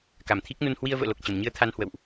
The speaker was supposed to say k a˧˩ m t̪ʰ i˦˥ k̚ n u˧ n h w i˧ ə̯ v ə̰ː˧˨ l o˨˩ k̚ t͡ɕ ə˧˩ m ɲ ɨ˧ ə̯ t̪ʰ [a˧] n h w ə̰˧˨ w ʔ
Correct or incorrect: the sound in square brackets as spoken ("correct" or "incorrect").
correct